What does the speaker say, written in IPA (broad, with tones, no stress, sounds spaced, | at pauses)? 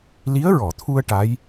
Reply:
l i˧˥ ə̯ ɹ ɔ˨˩˨ t̪ʰ u˧ ə̯ ʈ a˧˥ j